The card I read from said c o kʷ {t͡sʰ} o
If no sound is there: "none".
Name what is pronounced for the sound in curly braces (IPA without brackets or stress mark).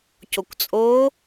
t͡sʼ